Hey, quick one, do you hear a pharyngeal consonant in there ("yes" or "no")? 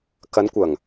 no